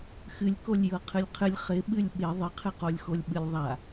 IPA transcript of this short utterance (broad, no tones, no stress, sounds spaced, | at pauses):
x ɨ lʲ k o lʲ j ɤ qʰ ɨ lʲ qʰ ɨ lʲ χ ɪ ɓ ɨ lʲ ɓ ɪ ðˤ ɪ qʰ ɨ q o lʲ x o lʲ ɓ ɨ lʲ ðˤ a